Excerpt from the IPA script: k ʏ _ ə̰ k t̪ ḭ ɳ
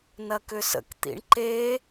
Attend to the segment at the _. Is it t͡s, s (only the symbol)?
s